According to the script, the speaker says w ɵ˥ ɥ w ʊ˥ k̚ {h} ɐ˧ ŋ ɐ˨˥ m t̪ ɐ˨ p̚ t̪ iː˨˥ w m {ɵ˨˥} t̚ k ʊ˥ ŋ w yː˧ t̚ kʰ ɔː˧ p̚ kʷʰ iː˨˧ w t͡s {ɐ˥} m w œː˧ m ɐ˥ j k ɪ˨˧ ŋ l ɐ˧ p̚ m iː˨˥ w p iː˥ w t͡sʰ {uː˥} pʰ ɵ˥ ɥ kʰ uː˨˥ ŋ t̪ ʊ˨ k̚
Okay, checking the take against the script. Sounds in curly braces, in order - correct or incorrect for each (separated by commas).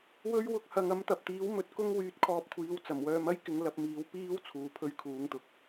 correct, incorrect, incorrect, incorrect